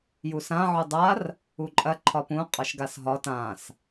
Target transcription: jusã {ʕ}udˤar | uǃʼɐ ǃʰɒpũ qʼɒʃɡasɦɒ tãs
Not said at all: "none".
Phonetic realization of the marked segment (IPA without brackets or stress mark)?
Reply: ʕ